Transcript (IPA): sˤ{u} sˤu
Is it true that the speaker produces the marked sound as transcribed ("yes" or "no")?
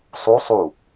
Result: yes